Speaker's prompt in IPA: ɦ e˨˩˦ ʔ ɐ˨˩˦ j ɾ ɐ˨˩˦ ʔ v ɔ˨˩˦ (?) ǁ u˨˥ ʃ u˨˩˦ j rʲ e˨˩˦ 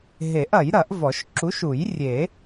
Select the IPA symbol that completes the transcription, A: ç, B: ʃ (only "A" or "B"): B